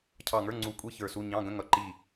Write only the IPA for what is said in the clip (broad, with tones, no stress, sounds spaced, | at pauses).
cʰ ɑ˧˩ ŋ ə˞˧˥˧ ŋ͡ǀ u˧˩ kʷʼ i˧˥˧ ç ə˞˧˩ s u˧˥˧ ɲ ɑ̃˧˥˧ ɡ ə̃˧˥˧ ŋ ʌ˧˩ ǃ i˧˩